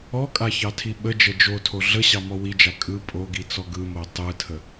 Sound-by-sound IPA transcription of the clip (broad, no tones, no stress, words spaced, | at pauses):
ɔkʼaçɑtʰi ɓəd͡ʒə d͡ʒotʰo ɮəɕɑmɔ wid͡ʒa kʼɯ pʼoɡit͡sɔ ɡɯmo tˤɯtʰə